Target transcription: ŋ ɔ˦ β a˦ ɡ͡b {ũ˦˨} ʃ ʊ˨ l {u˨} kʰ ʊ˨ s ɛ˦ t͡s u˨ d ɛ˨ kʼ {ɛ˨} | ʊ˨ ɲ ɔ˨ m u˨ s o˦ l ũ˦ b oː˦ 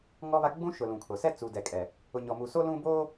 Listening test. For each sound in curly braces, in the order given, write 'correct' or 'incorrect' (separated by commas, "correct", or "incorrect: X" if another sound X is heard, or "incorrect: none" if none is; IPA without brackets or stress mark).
incorrect: ũ˦, incorrect: ũ˨, correct